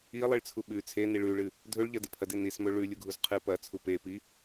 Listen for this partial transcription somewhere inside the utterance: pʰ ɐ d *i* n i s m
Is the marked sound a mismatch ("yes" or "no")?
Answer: yes